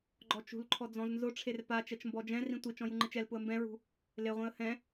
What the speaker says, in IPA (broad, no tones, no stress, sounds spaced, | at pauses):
ɡ͡ǃ ɔ t͡ʃ ṳ l ǃʰ ɔ d͡z ɔ̃ z n z ʊ ʈ͡ʂʰ e r p a t͡ʃ ɛ t͡ʃ m b ɔ d͡ʒ ɛ̃ r ĩ tʷ i t͡ʃ ɔ̃ j u ŋ͡ǃ ɪ t͡ʃ ɛ l p ʊ ə̯ m b ɛ̃ ɹ ṳ | l e ʁʷ ĩ ə̯ h ɛ̃